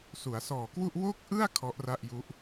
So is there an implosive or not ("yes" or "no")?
no